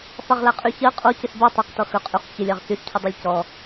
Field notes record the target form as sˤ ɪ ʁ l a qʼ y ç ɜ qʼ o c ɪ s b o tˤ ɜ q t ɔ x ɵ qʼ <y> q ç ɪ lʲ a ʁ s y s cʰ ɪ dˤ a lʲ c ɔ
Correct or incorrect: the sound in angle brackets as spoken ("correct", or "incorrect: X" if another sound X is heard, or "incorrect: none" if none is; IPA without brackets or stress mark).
correct